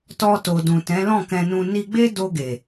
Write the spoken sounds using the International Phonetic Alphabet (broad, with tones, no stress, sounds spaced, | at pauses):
t ɔ˧ t o˨ d ũ˨ t ɛ̃˨˦ l ɔ̃˦˨ k ɛ̃˧ n ũ˧ n i˧ ɡ͡b e˦ d o˧ ɡ e˨